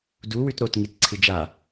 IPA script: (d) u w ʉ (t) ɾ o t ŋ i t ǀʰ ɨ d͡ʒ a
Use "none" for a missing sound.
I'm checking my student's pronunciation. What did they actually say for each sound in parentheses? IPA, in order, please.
d, t

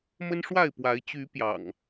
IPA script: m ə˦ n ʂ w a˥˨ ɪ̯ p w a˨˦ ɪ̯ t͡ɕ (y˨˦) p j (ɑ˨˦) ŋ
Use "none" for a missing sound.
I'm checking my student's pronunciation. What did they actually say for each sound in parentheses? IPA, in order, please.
y˨˦, ɑ̰˨˩

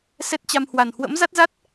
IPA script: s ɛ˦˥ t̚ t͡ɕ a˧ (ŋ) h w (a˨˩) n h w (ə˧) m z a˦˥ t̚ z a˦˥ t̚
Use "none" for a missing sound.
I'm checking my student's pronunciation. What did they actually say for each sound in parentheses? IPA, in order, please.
m, a˨˩, ə̰˧˥

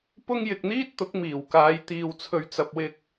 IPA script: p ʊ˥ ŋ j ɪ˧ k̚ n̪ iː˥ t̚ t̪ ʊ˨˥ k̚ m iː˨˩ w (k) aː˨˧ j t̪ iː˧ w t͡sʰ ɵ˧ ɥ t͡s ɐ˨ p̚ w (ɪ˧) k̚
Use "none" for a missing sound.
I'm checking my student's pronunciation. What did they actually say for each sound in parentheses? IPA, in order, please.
k, ɪ˧

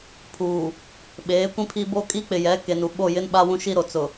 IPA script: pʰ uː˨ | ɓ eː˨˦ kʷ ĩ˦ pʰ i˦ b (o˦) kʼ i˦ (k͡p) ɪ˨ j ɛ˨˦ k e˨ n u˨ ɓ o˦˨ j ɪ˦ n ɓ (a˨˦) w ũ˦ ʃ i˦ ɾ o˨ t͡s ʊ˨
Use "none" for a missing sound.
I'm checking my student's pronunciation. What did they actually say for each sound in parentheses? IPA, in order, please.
o˦, k͡p, a˦

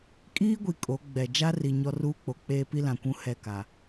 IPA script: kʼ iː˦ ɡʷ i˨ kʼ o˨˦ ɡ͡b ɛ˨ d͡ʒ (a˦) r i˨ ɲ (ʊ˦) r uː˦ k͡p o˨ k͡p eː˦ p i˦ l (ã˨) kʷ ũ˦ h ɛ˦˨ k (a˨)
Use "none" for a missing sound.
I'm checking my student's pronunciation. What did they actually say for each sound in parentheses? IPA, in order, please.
a˦, ɔ˦, ã˨, a˨

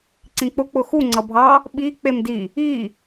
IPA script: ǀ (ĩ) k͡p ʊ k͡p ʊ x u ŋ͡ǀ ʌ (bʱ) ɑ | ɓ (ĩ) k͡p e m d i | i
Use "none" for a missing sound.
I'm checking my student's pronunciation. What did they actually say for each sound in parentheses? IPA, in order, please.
ĩ, bʱ, i

